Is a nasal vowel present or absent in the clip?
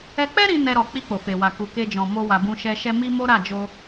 present